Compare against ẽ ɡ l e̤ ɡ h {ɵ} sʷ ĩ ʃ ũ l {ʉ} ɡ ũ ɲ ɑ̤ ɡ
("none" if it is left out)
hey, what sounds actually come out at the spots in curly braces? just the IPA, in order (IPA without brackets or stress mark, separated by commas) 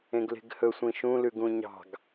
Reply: ɵ, ʉ